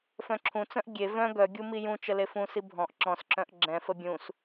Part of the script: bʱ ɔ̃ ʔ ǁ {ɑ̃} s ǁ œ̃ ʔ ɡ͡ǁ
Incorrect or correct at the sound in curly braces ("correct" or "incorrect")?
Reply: incorrect